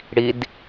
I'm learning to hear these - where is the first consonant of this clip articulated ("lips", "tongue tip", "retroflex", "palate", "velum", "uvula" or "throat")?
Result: retroflex